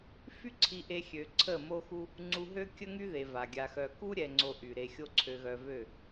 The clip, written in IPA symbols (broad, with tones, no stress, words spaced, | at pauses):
fy˦ǀʰi˧ʔe˧xʲø˨ ǀʰə˦˨mo˦xu˦ | ŋ͡ǀu˧ɦø˦ kʲə˦ŋy˦ðe˨ va˨ɡʲa˧xœ˧ ku˦ɾʲɛ˨ ŋ͡ǀo˧ ʔy˨ɾe˧xʲo˦ ǀʰø˧ɣœ˧vø˦˨